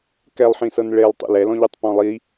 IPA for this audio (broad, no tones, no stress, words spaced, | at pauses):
kɛlˠħĩsɤn ɭelˠ tˤḭlɛlɔ̃ʎutˤ pɔ̃lˠi